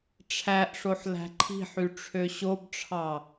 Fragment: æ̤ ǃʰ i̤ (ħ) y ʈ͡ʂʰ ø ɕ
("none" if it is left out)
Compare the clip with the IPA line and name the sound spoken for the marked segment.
ħ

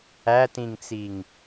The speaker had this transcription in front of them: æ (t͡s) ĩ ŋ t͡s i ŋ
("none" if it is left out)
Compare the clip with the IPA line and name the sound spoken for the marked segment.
t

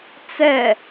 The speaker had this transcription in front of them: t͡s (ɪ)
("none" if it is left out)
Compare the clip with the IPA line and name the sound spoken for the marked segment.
ɛ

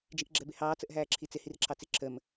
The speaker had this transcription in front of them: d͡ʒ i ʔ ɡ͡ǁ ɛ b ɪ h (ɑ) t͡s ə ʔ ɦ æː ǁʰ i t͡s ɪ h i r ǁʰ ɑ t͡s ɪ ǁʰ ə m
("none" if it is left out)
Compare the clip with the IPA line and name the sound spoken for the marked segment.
ɑː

